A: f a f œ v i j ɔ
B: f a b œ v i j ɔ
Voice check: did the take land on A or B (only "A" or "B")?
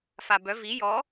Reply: B